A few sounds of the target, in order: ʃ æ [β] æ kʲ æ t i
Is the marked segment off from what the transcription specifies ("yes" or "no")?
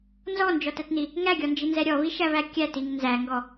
no